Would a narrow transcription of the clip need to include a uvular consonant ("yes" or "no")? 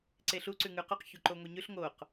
yes